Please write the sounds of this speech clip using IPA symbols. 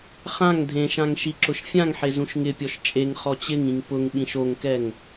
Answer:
χãŋ dʱẽʃãŋ ʃiǁʊʃfʲãŋħe zũʃŋɪpʲɔʃ t͡ʃʼeŋ χɔt͡ɕɪŋĩŋ pʊŋɓĩʃ oŋkɛŋ

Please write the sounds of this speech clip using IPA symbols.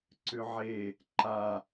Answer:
ǀʏʕe | ǃa

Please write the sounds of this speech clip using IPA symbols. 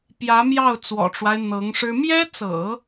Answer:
pjä˧˥mjɑ˥˩ʊ̯t͡swɔ̰˨˩ʈ͡ʂwa˦ɪ̯ n̪ɤ˧˥ŋʂɻ̩˥ mjɛ˥t͡sɤ̰˨˩˦

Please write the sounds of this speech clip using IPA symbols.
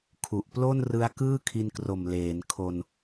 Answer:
kʰu˨˩ʔplo˥˩nrɯ˦˥a̯ kɯː˥˩kʰi˧nkro˨˩m leː˩˦nkʰo˧n

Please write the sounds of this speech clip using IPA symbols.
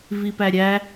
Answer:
vipæɾʲæ

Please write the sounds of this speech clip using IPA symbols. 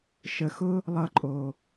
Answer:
ʃə˨xʊ˦ | lˠʌ˧ǃʼo˨

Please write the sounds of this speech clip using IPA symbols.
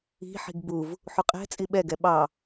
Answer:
i̤ħi̤ɡ buv | ħuqʼɛ̤t͡sʼi ɓɛɡɛ ɓɑ

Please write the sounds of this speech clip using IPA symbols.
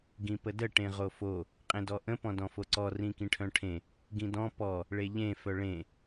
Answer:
ɡĩpədə ʈẽʁofo | qʼẽdɔʔə̃ pɔ̃dɔ̃foǀɔ rĩkĩʈʰœ̃ʈʰẽ | ɡĩdɔ̃ pɔ | ɭeʎẽ fœɭẽ

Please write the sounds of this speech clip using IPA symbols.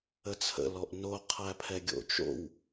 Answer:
ət͡sʰə̰ lɔʔno qʰæpʰɛɡʲo̰ t͡ʃo̰w

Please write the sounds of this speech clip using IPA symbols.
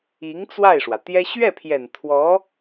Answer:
i˧˥ŋ t͡swa˥˩ɪ̯ʂwä˩t̪jɛ˥ ɕɥɛ˥˩pʰjɛ˨˩n t̪ʰwɔ˧˥

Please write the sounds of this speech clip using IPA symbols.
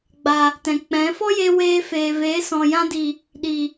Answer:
ɡ͡ba˨ | tɛ̃˨k͡pɛ̃˨˦ fɔ˦je˧ weː˧feː˨veː˨˦ sɔ̃˨jã˧di˨ | ɗi˨

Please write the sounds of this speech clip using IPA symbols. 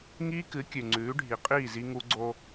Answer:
ŋiː˦kɨ˨˦ kʲʉ˨ŋ͡ǀʉː˨˦ɖʱi˨qʼiː˦˨ zi˦ŋu˦ ɡ͡ǀo˦

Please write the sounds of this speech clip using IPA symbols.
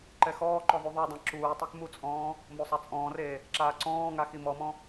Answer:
ǃɛxɔːǃɔ ðˤuðˤudˤɛ̃ ǁuːtˤɛk mut͡sʼɔ̃ː | mosˤat͡sʼɔ̃ːreː | ǁaːǀɔ̃ːŋa ximɔmɔ̃

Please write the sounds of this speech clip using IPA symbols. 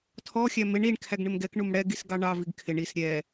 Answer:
tʰɔxʲæ mɪɳ iɳ kʰæɡɳɪmɡɛkɳum ɽɛɡis ɡɑɳɑviɡ kʰɪɳ is ɾʲɛ

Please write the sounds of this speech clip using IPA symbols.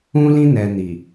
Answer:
ũ˦lĩ˦ nɛ˧ ni˨

